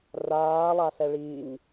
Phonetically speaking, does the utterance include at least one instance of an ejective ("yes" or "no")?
no